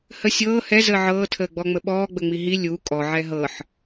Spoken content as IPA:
h ə sʲ ɤː h ɛ z əː ʕ ɤː tʰ əː ɡ͡b ɔ ŋ͡m ə ɓ ɔː ɡ͡b ə ŋ͡m i ɦ i lʲ u kʼ ɔ ʕ ɛ ɦ ɤ ħ

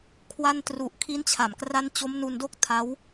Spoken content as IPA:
kʰ w a˧ n t r u˨˩ ʔ kʰ i˦˥ n t͡ɕʰ a˨˩ m k r a˦˥ n t͡ɕ o˦˥ m n u˧ n d o˦˥ k̚ tʰ a˦˥ w

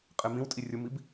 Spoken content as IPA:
qʼ e m ĩ w tʼ i rʲ ʊ m i b

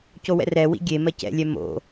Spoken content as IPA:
c o w ɛ̰ r ɛ w ḭ ɡʲ e m ɜ c ɛ̰ lʲ ɛ m o̰

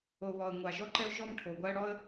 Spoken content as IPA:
o˨ β ɔ˨ ə̯ ŋʷ a˨ ʒ ɔ˦ ǃ ɛ˦ ʊ̯ ʒ ɔ˦ m ʈʰ o˨ ɡʷ a˦ ə̯ ɽ ɔ˦ ə̯

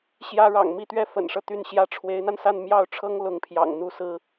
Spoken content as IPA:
ɕ j ä˥ ɻ ɑ̰˨˩ ŋ m i˥˧ t̪ ɥ ɛ˥˩ f ə̰˨˩ n ʂ ɤ˦ t̪ y˥˩ n ɕ j ä˥ ʈ͡ʂʰ w e˧˥ ɪ̯ n̪ a˧ n s a˥˧ n m j ɑ˥˩ ʊ̯ ʈ͡ʂʰ ɤ˥ ŋ l ʊ˧˥ ŋ pʰ j ɑ̰˨˩ ŋ n̪ u˥˩ s ɹ̩˥

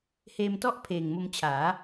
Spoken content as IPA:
h eː˧ m t ɔ˥˩ ʔ pʰ eː˨˩ ŋ m o˧ m t͡ɕʰ aː˩˦

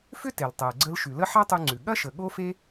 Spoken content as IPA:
f ʏ˥ t e˩ l tˤ e˩ ə̯ ɡ͡ǀ ə˧ l ʃ ʉ˩ l ə˥ ħ a˥ tˤ ʉ˧ ŋ͡ǀ ʉ˩ ɠ ɐ˥ ʃ ə˩ ɠ o˥ f e˥

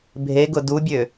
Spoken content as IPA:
bʱ e ɡ ʊ d u bʲ ø

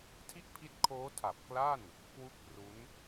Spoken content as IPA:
tʰ i˥˩ ʔ pʰ i˦˥ t̚ kʰ oː˦˥ tʰ a˨˩ p̚ k l a˥˩ n | k w u˦˥ k̚ p r u˦˥ n

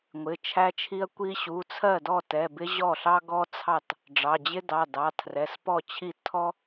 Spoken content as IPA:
ŋʷ ɪ˩˧˩ t͡ʃʰ æ˥ t͡ʃʰ i˥ ɐ̯ kʷ i˥ ɕ u˩˧˩ t͡sʰ ɜ˥˩ d ɔ˥˩ t ɛ˩˧˩ b ɪ˥ ʑ ɔ˥˩ ɬ ɑ˥ ɡ ɔ˥ t͡sʰ ɑ˥˩ t | ɖ͡ʐ ɑ˩˧˩ d͡ʑ ɪ˥ d ɑ˩˧˩ d ɑ˩˧˩ tʰ r ɛ˩˧˩ s p ɔ˥˩ t͡ɕʰ i˥˩ tʰ ɔ˥

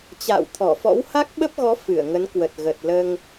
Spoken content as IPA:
t͡ɕ a̰ː˧˨ w t̪ʰ ɔ˧˩ f ɔ̰˧˥ w h a˦˥ k̚ ɓ ə˦˥ p̚ ɣ ɔ˨˦ f ɨ˧˩ ə̯ ŋ ə˨˦ n k w ə˨˩ t̚ ɣ ə˨˩ t̚ l əː˧ ŋ

